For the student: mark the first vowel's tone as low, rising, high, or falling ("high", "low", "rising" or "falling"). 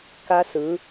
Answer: high